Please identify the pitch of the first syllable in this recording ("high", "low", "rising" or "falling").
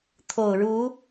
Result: low